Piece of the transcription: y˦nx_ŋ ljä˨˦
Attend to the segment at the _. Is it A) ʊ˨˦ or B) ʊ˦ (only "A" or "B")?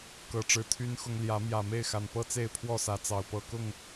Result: B